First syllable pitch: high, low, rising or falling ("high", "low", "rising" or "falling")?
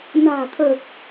low